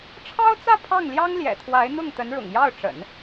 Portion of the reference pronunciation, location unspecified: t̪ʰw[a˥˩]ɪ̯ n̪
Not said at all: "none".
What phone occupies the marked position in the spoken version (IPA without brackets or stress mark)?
a˧˥